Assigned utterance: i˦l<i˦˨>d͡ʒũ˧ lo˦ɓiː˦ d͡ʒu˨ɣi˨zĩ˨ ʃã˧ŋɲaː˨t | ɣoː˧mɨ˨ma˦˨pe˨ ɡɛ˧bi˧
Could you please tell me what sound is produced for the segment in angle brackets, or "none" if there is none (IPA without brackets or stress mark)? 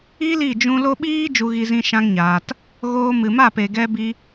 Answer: i˦˨